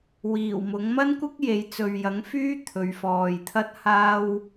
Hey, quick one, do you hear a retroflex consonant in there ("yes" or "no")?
no